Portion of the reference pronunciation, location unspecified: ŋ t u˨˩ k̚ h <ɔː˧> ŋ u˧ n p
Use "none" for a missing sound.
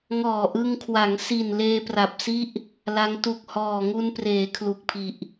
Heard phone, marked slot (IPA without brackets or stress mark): ɔː˨˩